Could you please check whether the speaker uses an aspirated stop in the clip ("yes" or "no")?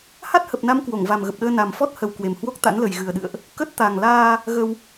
no